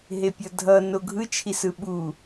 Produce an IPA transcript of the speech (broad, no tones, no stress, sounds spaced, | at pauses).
ɦ e pʲ ʌ dʱ ʌ n o ɡʱ ɯ t͡ʃʰ i s ɯ ɓ u